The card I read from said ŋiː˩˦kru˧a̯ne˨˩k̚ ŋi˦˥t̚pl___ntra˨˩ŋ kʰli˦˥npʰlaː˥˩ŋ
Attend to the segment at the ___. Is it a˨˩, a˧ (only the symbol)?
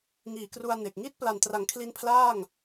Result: a˨˩